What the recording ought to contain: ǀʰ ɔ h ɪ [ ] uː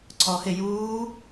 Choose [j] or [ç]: j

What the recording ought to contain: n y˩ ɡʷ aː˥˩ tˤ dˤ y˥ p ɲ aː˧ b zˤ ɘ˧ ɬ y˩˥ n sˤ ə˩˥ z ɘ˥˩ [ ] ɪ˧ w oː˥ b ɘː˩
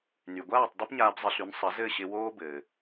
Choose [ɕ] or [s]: ɕ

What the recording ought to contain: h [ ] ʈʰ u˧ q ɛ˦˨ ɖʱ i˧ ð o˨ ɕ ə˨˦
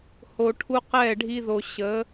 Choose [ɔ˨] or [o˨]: o˨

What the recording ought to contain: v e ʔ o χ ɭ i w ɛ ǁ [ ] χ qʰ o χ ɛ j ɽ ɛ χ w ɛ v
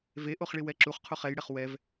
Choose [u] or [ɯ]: u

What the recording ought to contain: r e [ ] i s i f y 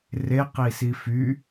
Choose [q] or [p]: q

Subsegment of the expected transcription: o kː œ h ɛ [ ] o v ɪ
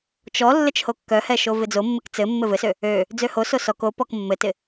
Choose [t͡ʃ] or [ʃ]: ʃ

